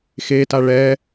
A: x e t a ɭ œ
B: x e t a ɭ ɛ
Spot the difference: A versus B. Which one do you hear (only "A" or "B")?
B